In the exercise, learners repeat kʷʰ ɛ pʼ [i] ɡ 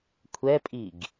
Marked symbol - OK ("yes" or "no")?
yes